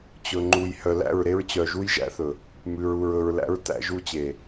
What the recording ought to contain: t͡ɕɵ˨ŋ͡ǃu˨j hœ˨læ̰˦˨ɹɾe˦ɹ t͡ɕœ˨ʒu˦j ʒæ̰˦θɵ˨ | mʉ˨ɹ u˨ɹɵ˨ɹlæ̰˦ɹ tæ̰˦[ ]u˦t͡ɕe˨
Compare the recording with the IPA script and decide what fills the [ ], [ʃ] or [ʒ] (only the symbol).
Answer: ʒ